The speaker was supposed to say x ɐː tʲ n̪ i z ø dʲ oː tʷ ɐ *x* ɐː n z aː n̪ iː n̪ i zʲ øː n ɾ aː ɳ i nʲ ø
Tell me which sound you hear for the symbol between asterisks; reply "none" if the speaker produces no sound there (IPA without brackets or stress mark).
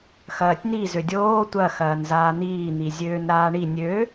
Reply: x